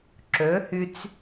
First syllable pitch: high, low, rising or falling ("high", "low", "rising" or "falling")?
rising